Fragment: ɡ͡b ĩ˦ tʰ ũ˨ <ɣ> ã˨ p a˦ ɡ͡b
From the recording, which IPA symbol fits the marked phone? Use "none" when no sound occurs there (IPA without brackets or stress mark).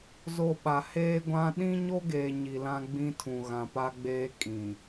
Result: ɣ